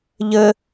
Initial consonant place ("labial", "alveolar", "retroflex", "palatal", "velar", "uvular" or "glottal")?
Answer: palatal